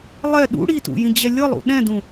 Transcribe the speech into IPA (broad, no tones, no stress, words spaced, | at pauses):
lˠɛ ɗṵ ɽitṵjĩd͡ʑɛ lʲɤlˠṵ ɗɛ̃dũ